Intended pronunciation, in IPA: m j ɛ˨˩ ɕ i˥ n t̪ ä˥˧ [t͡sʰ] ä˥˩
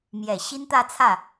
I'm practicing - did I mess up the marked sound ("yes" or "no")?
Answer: no